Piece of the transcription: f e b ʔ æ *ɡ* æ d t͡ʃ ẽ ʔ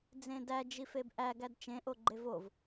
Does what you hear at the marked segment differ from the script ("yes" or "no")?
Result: no